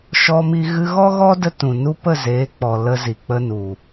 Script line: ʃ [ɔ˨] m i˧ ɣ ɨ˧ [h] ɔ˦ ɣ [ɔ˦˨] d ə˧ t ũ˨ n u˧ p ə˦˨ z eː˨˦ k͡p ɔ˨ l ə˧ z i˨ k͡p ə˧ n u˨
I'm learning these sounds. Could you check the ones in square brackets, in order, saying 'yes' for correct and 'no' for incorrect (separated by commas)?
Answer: no, no, no